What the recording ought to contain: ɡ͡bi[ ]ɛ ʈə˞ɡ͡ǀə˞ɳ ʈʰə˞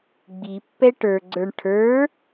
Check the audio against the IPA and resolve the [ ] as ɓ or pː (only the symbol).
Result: pː